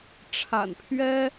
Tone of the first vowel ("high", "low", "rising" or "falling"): low